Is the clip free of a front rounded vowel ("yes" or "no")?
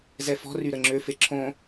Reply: no